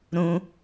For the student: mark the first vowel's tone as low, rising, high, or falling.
high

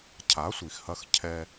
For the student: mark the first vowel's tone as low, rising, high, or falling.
rising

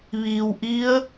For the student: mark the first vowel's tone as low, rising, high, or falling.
low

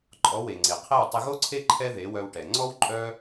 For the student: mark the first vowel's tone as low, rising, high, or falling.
rising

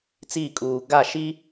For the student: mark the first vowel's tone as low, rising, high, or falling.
falling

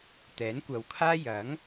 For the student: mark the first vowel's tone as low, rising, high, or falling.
rising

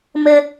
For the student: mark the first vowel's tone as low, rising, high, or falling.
high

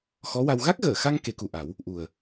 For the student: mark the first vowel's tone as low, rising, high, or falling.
rising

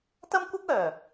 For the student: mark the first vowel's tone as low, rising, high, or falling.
high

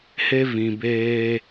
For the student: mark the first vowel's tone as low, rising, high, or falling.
high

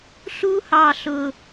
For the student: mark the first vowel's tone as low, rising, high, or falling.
high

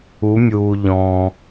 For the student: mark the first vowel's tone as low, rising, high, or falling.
rising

